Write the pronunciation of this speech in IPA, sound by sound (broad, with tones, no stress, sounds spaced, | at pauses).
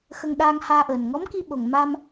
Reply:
x ə˧ ŋ ɗ aː˧ ŋ h aː˧ ʔ əː˨˩ n ŋ ɔ˧˥ m k i˧ ɓ o˨˩ ŋ m a˧ m